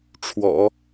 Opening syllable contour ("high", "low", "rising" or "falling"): low